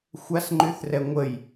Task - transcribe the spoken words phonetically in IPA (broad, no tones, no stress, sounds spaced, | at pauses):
xʷ a s ŋ͡ǃ y θ r ɛ ŋʷ ə j